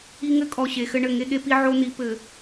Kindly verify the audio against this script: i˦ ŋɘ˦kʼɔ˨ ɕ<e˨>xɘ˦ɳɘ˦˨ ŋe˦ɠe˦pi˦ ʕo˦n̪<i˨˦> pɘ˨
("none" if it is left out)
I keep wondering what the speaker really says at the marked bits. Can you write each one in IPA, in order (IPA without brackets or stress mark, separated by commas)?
e˨, i˨˦